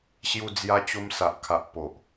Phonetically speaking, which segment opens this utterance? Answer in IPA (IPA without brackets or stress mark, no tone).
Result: ɕ